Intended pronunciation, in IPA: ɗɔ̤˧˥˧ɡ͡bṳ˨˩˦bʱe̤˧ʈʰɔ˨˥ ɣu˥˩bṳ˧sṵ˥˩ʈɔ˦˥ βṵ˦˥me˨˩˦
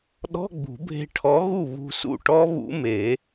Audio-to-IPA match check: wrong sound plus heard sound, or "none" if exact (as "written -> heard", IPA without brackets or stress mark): b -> β